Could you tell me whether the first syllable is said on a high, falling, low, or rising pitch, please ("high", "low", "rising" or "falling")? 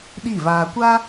falling